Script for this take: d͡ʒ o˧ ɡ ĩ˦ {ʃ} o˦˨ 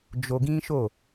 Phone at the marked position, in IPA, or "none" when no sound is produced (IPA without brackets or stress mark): ʃ